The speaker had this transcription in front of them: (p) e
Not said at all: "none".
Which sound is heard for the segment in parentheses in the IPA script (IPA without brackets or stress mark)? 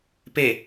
p